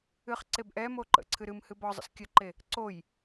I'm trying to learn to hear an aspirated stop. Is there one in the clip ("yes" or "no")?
yes